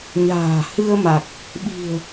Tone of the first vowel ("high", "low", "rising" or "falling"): low